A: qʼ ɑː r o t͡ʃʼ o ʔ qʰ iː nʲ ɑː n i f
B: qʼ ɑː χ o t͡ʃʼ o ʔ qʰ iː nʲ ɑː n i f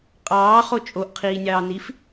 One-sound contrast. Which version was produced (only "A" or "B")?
B